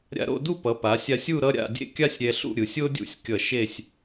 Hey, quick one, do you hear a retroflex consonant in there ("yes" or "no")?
no